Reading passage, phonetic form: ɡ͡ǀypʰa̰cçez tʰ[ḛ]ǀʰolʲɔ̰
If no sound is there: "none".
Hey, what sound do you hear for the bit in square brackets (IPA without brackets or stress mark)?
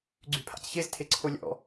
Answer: e